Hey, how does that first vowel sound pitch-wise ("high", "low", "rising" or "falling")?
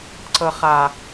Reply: low